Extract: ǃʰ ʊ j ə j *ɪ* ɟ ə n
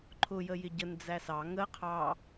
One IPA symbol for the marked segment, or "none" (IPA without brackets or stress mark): ɪ